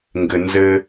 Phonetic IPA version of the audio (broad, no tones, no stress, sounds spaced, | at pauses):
ŋ ɡ ɘ n z ɘ